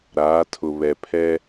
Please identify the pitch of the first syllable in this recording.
rising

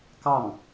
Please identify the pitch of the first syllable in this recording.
falling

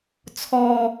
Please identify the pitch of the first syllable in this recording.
low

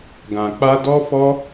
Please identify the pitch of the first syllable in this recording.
low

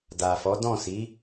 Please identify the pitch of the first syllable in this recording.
low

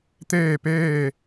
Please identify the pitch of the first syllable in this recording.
falling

